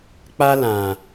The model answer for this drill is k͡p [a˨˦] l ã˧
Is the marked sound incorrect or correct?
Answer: incorrect